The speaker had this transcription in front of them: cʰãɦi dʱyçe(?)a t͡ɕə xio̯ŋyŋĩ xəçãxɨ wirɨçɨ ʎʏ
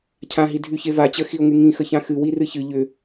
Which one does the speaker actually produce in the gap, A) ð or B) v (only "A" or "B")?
B